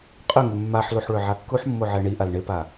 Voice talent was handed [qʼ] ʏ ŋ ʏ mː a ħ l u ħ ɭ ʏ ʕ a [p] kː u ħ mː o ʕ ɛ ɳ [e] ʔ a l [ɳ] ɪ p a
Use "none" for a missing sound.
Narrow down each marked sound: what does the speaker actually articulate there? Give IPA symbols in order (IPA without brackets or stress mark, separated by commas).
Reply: qʼ, none, i, ɳ